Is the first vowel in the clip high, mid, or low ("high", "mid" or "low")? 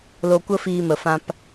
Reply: mid